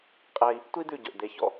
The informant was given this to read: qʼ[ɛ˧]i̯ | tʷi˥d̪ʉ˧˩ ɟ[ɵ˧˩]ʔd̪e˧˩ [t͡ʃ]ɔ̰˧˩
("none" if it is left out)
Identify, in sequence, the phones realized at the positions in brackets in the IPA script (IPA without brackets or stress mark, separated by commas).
ɛ˧, ɵ˧˩, ç